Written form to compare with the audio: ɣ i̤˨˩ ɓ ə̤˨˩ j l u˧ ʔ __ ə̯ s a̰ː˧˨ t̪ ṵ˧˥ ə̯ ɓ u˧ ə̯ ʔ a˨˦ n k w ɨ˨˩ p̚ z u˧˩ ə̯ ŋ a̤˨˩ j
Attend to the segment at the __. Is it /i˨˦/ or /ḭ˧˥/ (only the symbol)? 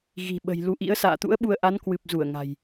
ḭ˧˥